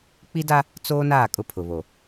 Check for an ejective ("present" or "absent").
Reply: present